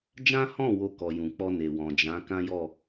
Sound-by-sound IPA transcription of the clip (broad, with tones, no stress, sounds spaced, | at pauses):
d͡ʒ ã˦ h ɔ̃˦˨ w o˧ k ɔ˨ j ũ˨ k͡p ɔ˧ n e˨ w ɔ̃˨ d͡ʒ ã˨˦ k ã˦ j ɔ˦˨